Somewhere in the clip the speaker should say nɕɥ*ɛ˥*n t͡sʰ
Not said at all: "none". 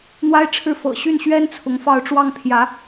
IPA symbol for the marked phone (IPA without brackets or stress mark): ɛ˥